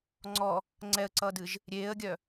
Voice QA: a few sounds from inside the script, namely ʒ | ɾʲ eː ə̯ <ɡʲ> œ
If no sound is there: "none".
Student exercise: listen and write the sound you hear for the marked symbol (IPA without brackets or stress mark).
ɡʲ